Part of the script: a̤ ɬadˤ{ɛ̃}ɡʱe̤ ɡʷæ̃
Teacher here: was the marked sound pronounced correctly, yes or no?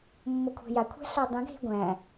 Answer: yes